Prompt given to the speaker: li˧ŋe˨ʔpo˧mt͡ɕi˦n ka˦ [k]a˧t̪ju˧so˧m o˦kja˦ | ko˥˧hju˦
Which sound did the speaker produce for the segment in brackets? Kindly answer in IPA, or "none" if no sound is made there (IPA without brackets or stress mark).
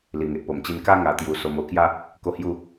ŋ